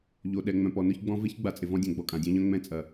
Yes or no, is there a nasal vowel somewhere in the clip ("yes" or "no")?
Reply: yes